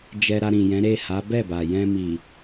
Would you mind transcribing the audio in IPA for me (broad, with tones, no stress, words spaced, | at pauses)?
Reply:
d͡ʒɛ˧ɾa˧ ɾĩ˨jɛ̃˨˦ɾe˦˨ ha˨˦ bɛ˦˨ba˨jɛ̃˧ mi˨